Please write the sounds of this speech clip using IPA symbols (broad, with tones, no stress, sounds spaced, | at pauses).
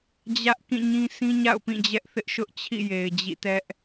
d͡ʑ ä˦ ʔ k ĩ˦˨ ɲ ĩ˦ s ĩ˦ ɲ a̰˦˨ ʊ̯ p ĩ˦˨ d͡ʑ ɛ˦ ʔ θ ɪ˦ ʔ ʃ ʊ˦ ʔ t͡ɕʰ ḭ˦˨ j e˨ ɪ̯ d͡ʑ ḭ˦˨ t ɛ˦ ʔ